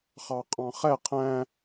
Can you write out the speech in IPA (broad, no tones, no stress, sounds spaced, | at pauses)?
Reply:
χ ɑ qʼ ɑ̃ χ ɛ qʰ æ̃